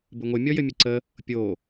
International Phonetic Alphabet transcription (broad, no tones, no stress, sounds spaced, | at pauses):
b ɘ ŋʷ ɘ mʲ ɔ j ɘ mʲ ə ǀ ə | pʲ o